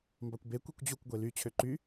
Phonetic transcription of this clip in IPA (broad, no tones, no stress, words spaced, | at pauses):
mbɑkʷbe kʷikʷd͡ʑukʷ ɡʷely t͡ɕʰøǃy